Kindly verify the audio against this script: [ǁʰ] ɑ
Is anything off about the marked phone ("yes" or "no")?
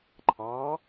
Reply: yes